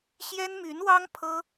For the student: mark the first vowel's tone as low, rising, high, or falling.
high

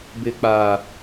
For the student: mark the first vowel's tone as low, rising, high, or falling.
low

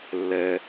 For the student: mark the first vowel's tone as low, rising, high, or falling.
low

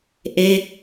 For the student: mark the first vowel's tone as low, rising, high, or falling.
falling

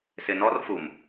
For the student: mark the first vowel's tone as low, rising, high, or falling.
low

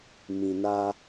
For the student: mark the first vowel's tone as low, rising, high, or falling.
low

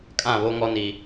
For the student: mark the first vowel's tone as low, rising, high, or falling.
falling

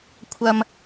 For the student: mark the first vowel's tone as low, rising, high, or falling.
low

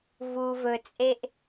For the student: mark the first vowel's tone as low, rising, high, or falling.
low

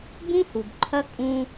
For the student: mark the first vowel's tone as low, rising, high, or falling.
high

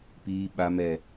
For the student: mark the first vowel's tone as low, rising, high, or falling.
low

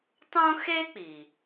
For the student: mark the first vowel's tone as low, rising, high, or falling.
high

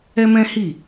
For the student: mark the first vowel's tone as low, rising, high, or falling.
high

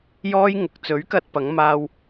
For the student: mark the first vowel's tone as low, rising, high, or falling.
high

